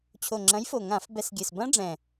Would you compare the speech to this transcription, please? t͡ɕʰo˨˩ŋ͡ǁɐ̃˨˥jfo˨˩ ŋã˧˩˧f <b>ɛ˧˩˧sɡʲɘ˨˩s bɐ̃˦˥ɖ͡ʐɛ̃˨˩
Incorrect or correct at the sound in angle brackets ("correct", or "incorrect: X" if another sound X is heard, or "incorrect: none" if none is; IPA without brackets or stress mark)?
correct